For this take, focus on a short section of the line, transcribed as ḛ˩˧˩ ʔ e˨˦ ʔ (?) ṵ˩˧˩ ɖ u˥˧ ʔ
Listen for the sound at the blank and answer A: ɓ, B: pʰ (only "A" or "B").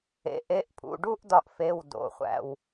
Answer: B